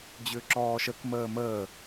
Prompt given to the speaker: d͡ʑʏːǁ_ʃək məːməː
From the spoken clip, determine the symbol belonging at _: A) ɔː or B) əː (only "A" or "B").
A